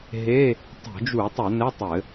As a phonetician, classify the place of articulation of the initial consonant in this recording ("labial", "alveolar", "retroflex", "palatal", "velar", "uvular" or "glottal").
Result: glottal